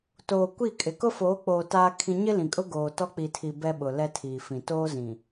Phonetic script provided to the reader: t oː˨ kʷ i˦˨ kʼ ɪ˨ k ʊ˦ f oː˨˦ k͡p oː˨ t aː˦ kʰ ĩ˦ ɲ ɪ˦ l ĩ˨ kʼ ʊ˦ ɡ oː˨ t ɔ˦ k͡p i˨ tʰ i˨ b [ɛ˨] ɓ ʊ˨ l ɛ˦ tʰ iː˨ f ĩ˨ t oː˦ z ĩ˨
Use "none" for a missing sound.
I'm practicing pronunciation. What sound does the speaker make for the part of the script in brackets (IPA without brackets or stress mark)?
ɛ˦